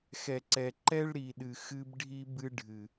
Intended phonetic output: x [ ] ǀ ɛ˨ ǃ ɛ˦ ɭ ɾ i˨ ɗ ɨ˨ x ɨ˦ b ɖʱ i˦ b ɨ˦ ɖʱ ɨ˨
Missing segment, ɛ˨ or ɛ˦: ɛ˨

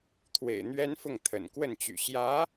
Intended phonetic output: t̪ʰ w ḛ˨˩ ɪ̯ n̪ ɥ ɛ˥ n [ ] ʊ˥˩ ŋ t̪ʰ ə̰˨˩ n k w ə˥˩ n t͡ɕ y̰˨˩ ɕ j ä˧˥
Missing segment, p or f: f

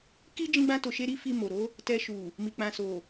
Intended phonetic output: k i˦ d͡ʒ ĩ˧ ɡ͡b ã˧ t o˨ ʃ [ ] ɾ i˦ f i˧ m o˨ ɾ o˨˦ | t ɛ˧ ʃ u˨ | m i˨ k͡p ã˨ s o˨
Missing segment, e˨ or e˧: e˧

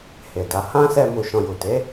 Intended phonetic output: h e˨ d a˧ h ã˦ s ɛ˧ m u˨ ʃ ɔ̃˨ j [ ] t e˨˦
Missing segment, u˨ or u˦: u˨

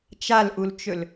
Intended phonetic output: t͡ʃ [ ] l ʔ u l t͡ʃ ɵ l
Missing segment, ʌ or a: a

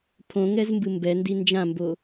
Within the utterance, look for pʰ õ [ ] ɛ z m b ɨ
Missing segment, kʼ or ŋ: ŋ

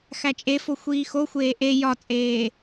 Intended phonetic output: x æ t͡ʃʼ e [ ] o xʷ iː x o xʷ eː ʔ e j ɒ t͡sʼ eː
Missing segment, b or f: f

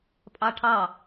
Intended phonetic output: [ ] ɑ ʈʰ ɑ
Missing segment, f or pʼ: pʼ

